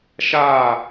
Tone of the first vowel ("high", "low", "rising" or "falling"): falling